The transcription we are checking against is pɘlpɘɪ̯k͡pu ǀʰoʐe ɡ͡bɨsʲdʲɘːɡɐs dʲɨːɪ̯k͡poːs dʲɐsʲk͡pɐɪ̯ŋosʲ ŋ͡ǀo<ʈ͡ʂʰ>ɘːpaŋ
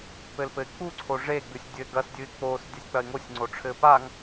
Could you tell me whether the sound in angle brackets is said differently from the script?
no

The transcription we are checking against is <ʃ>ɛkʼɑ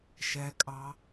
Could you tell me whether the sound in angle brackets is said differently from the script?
no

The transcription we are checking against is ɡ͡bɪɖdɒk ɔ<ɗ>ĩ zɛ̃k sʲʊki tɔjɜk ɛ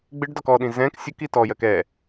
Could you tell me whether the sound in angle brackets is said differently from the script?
no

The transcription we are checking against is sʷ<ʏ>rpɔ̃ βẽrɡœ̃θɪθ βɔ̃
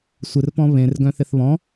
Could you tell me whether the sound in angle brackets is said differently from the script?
yes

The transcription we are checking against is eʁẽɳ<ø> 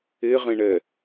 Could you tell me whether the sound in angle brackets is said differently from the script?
yes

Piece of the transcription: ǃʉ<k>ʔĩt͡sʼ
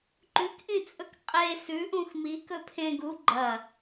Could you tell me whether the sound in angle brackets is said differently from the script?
no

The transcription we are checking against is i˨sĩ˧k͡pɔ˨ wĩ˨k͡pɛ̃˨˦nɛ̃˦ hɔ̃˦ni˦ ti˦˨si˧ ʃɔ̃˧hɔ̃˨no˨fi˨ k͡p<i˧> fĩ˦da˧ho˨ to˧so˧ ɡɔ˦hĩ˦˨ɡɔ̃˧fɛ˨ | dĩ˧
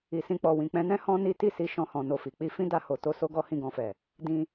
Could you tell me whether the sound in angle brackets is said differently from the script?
no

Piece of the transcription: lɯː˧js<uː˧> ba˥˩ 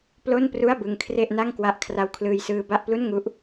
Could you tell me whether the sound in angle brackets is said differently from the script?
yes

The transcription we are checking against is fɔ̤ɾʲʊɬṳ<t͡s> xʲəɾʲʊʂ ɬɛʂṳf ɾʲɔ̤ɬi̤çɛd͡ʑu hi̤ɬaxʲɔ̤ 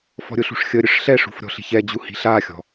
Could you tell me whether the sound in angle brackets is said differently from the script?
yes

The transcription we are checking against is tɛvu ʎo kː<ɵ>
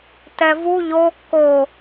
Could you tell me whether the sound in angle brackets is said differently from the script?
yes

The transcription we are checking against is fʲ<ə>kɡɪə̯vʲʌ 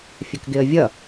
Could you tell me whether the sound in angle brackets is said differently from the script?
no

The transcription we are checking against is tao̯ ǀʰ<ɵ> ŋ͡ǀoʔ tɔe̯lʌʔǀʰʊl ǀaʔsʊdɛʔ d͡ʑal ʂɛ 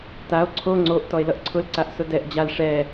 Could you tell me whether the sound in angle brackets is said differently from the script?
yes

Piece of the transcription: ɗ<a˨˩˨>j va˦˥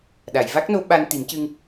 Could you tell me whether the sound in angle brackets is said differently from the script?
no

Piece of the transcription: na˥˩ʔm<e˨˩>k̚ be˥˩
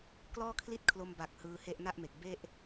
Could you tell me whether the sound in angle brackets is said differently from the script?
no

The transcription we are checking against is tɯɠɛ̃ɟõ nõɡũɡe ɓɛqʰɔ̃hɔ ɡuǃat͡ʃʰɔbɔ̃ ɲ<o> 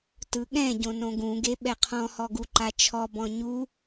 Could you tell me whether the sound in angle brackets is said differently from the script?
yes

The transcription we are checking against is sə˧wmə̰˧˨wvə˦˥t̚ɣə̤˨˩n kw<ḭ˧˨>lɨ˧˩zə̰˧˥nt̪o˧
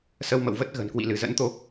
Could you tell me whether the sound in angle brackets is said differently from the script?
no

